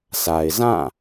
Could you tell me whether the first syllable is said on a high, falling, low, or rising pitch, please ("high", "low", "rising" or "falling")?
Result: low